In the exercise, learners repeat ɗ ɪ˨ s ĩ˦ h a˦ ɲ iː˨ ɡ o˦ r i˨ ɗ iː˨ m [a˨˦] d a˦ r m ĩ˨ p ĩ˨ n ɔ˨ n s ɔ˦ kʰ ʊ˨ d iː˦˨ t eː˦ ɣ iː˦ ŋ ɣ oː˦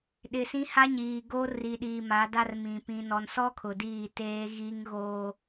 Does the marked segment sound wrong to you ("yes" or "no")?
no